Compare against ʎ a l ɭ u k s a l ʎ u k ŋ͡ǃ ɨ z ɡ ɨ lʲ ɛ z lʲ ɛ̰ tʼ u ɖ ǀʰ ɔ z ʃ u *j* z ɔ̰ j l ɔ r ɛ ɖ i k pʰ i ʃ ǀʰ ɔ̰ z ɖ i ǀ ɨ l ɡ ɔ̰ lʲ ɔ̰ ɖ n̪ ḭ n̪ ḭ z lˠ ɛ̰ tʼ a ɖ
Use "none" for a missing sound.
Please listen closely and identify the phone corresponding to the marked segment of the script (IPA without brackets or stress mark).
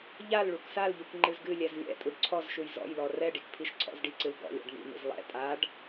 j